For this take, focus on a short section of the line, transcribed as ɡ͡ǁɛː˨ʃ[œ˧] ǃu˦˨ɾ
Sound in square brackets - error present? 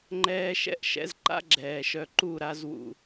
no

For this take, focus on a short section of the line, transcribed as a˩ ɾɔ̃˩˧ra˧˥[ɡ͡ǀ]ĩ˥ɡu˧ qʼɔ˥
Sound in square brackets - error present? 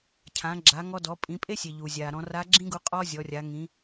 yes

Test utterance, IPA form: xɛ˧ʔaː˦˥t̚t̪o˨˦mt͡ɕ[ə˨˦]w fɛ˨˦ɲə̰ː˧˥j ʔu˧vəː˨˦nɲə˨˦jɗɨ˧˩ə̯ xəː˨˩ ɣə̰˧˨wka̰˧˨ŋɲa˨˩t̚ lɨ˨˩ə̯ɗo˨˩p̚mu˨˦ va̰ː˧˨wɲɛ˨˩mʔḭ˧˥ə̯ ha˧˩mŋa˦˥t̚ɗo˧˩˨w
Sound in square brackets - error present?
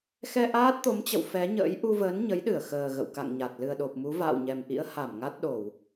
yes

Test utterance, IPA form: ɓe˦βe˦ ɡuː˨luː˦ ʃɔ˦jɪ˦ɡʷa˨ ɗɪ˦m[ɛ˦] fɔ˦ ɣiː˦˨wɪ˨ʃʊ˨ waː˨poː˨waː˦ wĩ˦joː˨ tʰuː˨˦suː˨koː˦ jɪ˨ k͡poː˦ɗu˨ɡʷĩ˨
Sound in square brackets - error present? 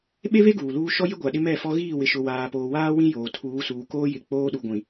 yes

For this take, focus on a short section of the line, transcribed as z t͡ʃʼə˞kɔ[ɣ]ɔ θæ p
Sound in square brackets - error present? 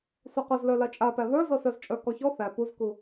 yes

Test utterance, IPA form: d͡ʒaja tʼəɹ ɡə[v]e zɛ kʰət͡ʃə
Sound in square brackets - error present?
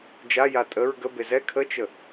yes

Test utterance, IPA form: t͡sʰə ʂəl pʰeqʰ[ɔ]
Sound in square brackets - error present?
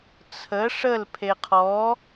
no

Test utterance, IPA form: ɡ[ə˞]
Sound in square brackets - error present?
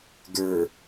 no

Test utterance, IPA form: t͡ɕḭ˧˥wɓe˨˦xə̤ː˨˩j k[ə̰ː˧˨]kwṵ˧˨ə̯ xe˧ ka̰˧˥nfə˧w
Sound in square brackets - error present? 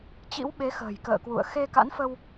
no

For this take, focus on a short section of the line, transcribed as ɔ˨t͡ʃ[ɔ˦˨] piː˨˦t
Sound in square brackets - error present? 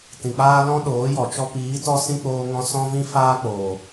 yes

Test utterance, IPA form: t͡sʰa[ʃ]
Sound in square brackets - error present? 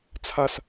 yes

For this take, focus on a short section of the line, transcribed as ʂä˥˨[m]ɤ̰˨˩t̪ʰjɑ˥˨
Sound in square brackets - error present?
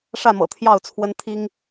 no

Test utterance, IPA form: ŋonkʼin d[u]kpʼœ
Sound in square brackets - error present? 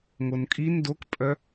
yes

